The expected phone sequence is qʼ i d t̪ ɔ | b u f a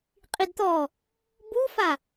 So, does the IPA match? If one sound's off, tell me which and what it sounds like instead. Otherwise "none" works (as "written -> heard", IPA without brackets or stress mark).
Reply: none